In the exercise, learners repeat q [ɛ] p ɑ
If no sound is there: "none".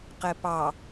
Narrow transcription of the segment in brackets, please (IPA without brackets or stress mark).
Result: ɛ